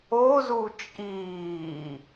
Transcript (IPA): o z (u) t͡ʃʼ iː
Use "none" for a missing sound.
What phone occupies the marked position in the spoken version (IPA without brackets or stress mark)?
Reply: u